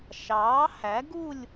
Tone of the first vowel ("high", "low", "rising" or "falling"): rising